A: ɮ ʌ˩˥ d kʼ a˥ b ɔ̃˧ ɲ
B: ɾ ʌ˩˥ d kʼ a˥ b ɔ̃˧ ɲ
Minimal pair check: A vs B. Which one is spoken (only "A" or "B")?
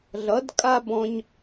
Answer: A